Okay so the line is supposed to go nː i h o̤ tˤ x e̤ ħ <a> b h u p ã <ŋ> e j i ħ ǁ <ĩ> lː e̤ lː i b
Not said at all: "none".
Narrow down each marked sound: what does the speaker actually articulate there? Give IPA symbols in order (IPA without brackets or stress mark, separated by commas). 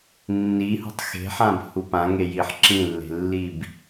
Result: ã, ŋ, ĩ